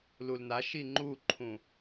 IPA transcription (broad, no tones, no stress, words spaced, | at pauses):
lulna ʃiŋ͡ǃuǃʰũ